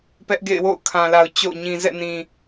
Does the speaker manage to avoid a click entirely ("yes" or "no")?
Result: yes